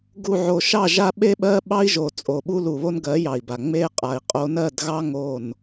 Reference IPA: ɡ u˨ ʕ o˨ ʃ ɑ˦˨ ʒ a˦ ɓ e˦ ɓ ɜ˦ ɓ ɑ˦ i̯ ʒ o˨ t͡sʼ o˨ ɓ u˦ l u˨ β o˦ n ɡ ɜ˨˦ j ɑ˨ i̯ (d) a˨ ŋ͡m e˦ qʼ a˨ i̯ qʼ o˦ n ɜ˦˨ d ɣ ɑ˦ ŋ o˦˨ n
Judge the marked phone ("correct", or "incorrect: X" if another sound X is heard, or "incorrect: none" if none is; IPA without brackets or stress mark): incorrect: b